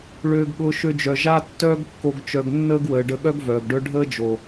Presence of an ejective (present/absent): absent